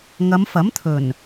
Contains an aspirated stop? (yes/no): yes